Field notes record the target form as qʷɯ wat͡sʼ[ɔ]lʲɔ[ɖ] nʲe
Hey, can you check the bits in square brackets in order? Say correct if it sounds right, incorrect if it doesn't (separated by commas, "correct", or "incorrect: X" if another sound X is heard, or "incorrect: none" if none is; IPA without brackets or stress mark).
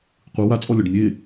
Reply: correct, correct